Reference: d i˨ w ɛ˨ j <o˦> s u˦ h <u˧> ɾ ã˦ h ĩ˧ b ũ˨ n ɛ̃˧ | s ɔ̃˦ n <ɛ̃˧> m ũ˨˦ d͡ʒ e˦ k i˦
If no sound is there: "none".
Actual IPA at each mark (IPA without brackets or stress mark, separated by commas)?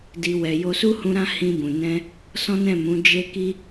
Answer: o˧, ũ˧, ɛ̃˦˨